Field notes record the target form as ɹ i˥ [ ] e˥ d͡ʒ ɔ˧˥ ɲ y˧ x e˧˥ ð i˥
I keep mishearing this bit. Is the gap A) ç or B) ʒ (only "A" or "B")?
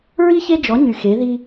A